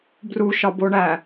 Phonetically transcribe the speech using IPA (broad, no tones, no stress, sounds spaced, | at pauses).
b r u ʃ ɒ b o ɳ æ